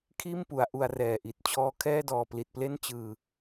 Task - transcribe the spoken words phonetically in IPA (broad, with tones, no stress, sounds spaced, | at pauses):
kʰ iː˥˩ m p u˩˦ a̯ ʔ u˧ a̯ r ɛː˨˩ ʔ i˨˩ t̚ t͡ɕʰ ɔː˧ kʰ ɛː˥˩ d ɔː˨˩ p l i˨˩ t̚ p l e˥˩ n t͡ɕ ɯː˨˩